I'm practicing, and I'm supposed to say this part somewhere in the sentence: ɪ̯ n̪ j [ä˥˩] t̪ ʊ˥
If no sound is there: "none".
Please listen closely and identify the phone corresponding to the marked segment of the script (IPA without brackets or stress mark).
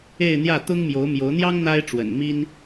ä˥˩